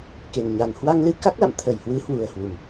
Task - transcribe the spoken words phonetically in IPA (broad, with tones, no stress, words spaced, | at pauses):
ke˨˩nɲa˨˩n hwa˧ŋlɨ˧ ka˦˥k̚la̰˧˨m t̪ʰə˧˩jhwɨ˨˦hwu˨˩ə̯ hwu˨˩m